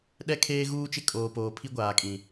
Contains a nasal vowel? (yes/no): yes